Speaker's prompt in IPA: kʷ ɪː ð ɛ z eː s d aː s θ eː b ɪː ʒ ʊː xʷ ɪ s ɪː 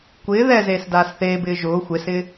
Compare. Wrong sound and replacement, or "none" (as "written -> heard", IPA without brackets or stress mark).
none